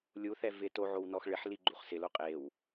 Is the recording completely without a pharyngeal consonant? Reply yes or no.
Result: no